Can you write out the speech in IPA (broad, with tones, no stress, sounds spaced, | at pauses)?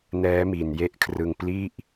n ɛː˦˥ m i˨˩ n j e˥˩ ʔ kʰ r ɯ˧ ŋ p l i˥˩ ʔ